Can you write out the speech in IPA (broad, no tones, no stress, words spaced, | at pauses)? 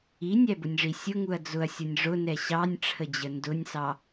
inʲæbʊnʲʐi sʲʊŋuɐ̯ d͡zʊɐ̯sʲʌnʲ ʐʊnɛ ɕɑnʲʈ͡ʂʰəd͡ʑə ndʊnʲsɑ